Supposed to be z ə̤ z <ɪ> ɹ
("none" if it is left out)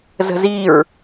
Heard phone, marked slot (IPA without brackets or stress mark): i